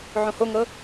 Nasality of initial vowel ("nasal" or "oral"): nasal